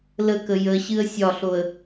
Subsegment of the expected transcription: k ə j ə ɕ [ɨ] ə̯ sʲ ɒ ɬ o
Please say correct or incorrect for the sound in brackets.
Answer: correct